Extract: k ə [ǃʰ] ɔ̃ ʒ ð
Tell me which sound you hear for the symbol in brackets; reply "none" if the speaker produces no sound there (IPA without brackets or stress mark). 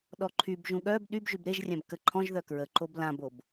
ǃʰ